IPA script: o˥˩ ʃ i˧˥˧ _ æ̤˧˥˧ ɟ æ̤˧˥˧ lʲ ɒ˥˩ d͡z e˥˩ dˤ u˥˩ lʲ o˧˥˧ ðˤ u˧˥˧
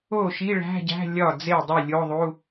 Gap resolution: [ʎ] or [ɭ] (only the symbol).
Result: ɭ